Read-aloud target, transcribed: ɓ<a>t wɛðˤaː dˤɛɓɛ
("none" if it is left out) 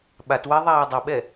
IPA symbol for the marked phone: a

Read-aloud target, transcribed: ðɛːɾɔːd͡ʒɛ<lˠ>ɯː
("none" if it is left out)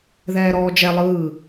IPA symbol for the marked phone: lˠ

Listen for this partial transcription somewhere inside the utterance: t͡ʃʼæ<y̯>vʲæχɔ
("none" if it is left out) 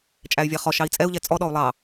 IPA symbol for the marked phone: y̯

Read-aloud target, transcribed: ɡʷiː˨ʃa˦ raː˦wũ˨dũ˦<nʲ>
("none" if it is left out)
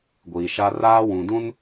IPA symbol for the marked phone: n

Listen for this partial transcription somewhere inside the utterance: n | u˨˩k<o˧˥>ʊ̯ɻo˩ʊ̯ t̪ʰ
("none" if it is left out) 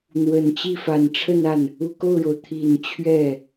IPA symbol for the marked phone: o˥˩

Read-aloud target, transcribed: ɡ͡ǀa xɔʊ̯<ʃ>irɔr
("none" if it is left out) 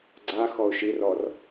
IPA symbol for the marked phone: ʃ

